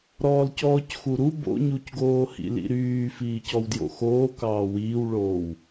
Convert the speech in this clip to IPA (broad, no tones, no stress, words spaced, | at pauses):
ɾɔːlcɔːcxuɾu bo̰ɲucɡoː hḭlḭɾyː fiːcɔwdjo̰xoː kɑːwiːwɭoːw